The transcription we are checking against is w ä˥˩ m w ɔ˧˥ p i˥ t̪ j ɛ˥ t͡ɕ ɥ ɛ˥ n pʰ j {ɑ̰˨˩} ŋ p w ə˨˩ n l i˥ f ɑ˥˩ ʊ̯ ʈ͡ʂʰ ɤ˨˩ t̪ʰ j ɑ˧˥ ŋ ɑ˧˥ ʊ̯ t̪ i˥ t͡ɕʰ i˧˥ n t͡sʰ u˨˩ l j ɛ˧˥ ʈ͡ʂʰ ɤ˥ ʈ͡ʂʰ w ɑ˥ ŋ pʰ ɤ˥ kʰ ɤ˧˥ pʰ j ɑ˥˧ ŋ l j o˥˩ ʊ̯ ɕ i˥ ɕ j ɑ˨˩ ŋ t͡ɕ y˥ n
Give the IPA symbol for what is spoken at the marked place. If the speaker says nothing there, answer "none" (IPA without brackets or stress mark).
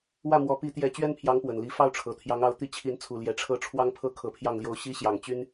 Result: ɑ˧˥